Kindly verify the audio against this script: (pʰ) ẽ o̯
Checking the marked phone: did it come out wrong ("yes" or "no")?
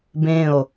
yes